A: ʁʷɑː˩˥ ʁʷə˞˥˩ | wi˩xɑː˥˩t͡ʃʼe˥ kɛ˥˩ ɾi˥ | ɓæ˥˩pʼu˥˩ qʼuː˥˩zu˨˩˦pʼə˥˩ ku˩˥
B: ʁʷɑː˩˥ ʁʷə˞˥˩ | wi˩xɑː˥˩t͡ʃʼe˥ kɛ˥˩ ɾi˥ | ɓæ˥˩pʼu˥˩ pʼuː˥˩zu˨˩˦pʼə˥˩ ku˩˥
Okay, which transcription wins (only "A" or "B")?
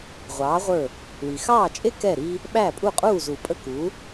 A